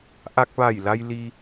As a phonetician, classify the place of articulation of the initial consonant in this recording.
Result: glottal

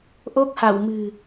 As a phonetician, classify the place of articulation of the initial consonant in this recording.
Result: glottal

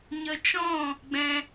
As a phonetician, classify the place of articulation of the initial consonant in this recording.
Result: palatal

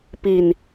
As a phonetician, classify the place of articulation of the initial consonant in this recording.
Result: labial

